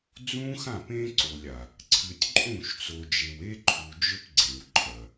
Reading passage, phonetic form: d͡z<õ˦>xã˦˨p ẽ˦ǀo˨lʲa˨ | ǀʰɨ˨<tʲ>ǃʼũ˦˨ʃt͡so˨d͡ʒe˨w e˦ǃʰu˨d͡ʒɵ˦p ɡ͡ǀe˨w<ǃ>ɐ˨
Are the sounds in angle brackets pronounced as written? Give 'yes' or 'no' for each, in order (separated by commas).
no, yes, no